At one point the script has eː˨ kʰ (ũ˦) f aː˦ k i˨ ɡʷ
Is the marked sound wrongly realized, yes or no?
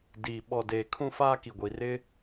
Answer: no